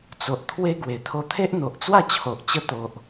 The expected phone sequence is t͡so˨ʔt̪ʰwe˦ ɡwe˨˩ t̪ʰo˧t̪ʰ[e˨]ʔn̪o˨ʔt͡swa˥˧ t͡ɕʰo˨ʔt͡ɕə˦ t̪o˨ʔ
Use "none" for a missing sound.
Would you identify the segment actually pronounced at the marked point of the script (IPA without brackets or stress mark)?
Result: e˦